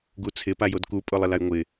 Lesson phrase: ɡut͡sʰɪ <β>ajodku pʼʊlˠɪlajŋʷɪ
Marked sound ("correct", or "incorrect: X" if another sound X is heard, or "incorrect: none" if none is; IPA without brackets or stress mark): incorrect: p